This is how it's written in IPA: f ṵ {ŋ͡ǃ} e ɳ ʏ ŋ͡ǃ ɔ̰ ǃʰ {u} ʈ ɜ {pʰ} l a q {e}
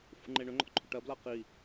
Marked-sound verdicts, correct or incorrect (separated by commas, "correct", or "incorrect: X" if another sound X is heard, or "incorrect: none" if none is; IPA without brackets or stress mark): correct, incorrect: ʏ, incorrect: b, incorrect: i